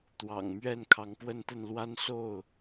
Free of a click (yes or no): yes